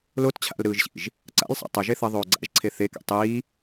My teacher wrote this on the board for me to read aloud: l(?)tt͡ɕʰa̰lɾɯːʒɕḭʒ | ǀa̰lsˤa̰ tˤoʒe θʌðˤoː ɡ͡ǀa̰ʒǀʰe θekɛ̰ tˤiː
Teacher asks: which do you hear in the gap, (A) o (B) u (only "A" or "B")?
A